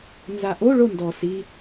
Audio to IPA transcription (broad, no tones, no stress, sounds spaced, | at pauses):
n z a ʔ o ɭ o n d ɔ s i